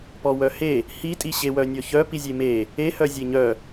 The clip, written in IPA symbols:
pɔwœhe | hitʼi ɕewœnʲɔçœ pizʲeme | ehœ zʲeɲœ

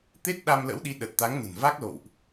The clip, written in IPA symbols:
t̪e˦˥t̚ ɗa˧mlə̰˧˥wɗi˨˦ ɗə˨˩t̚t̪a˨˦ŋ nə̤˨˩n va˦˥k̚lo̰˧˨wʔ

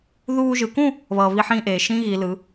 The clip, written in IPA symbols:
ðuː˧ʒɯ˩˧kũ˥˧ | βʌː˧βi˥ħĩː˥ʔeː˩˧ ʃĩ˥ɣi˩˧ lɯ˩˧

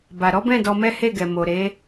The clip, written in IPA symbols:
ba˨ ɾɔ˨˦bɛ̃˦˨ dɔ˧mɛ˦he˦˨ɡɛ˨ mo˨ɾe˨˦

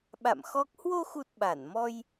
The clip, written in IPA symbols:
ɓa̰˧˨mxɔ˦˥k̚ hwo˧xu˨˩t̚ ɓa˧˩n mɔ˧j

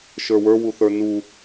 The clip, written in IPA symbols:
ʃə˞wə˞ wuθə˞nu

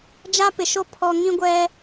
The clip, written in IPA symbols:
d͡ʒa˦pɪ˨ʃo˦ pʰɔ˨ ŋĩ˦ɡʷɛ˦

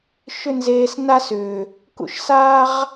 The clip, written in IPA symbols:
ʃʏ˦nzeː˧s na˦sʏː˨ | kṵ˦ʃ saː˦ʁ

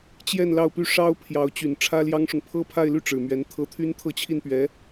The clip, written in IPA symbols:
t͡ɕjɛ˥˧n lɑ˥˩ʊ̯py˥ ʂɑ˥ʊ̯ pʰjɑ˧˥ʊ̯t͡ɕy˨˩n ʈ͡ʂʰä˥ljɑ˥ŋʂʊ˨ŋ pʰɤ˥pʰa˥˧ɪ̯ly˥˩ ʈ͡ʂɻ̩˨˩mɥɛ˧˥nt̪ʰɤ˥˩ t̪ʰy˥nt̪ʰɤ˥˧t͡ɕʰi˥˩npɥɛ˧˥

